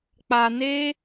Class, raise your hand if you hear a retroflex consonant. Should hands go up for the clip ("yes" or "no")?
no